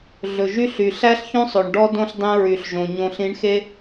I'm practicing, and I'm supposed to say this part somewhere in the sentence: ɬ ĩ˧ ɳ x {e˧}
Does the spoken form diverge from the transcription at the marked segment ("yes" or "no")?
yes